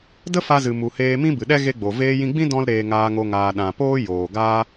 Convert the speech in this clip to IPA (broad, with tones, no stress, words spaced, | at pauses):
də˦fa˧zɨ˨ mu˨heː˧mĩ˦ bɨ˨ɗɛ˦ ɣe˦ɡ͡bo˨ veː˧ jĩ˧ɡ͡bĩ˦ dɔ̃˦l ɾeː˧ŋaː˧ ŋo˧ŋaː˨ ɗã˨poː˦ joː˨ɡaː˦